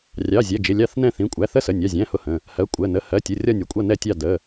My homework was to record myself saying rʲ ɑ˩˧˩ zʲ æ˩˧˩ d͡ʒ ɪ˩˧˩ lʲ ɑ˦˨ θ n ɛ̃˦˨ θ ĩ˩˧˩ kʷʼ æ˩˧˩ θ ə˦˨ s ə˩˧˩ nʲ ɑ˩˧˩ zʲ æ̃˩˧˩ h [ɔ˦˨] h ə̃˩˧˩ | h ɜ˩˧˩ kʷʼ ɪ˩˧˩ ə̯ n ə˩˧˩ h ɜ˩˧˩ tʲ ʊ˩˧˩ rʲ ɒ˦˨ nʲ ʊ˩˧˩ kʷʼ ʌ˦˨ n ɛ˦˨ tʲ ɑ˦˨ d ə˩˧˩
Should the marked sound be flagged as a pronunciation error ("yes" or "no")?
yes